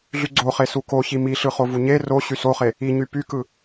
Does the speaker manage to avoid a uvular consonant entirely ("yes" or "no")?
no